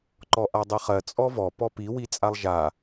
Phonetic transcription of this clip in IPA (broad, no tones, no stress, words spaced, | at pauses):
ǃɔʔadˤiχɜ t͡sʼɔvɔ pɔpi wit͡sʼalˠʒa